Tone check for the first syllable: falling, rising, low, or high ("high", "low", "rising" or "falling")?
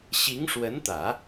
rising